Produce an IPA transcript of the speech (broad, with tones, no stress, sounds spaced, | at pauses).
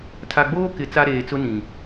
tʰ a˨ ɡ͡b oː˦ k ɪ˨ t͡s a˦ ɾ eː˨ t͡s ʊ˦ n ĩ˨